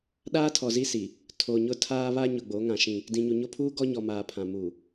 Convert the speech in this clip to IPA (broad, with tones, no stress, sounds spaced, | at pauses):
ɗ aː˦ tʰ ɔ˨ z i˦ s i˨ | tʰ o˨ ɲ ʊ˦ tʰ aː˦ β a˦ ɲ ʊ˨ ɡ͡b o˨˦ ŋ ã˨ ʃ ĩ˦ | d ĩ˨ ɲ u˨ ɲ o˦ pʰ uː˦ ɡ ɔ˦ ɲ ɔ˨ m aː˨ pʰ ã˨ m u˨